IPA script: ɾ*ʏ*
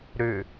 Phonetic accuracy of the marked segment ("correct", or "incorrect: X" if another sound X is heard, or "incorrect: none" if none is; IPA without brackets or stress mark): correct